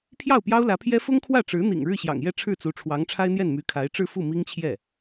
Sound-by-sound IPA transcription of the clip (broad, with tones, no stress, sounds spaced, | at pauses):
pʰ j ɑ˥˩ ʊ̯ p j ɑ˥ ʊ̯ l ä˧˥ pʰ j ɛ˥ f ʊ˥ ŋ kʰ w ä˥˩ ʈ͡ʂ ɻ̩˧˥ n̪ ḭ˨˩ ŋ ɻ ɻ̩˥˩ ɕ j ɑ̰˨˩ ŋ j ɛ˥˧ ʈ͡ʂʰ ɻ̩˥˩ t͡s u˧˥ ʈ͡ʂʰ w ɑ˧˥ ŋ ʈ͡ʂʰ a˥ ɪ̯ n̪ j ɛ˥˩ n m y˧˥ kʰ a˧˥ ɪ̯ ʈ͡ʂ ɻ̩˥˧ f u˥˩ m i˥ ŋ t͡ɕʰ j ɛ˥˩